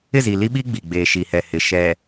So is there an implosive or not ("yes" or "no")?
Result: yes